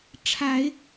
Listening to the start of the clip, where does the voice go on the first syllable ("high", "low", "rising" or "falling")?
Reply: low